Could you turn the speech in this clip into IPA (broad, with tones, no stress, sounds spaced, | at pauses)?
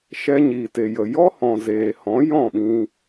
ʃ ɛ˧ ɲ iː˨ t e˨ j ə˨ j ɔ˦ h ɔ̃˨ z eː˨ h ɔ̃˨˦ j ɔ̃˦˨ ɓ ĩ˧